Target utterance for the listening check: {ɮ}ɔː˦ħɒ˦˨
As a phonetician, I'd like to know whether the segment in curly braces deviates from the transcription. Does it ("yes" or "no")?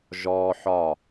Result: yes